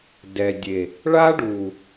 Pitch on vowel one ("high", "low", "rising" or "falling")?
low